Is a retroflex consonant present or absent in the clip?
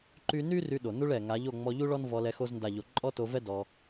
present